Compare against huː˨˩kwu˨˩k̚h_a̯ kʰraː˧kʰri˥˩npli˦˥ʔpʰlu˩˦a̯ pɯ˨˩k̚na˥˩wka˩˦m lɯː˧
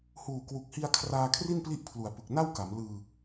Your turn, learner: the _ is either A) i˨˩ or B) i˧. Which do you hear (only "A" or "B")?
B